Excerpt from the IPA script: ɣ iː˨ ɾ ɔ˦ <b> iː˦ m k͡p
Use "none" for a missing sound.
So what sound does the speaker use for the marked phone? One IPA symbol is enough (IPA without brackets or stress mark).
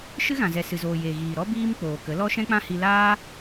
b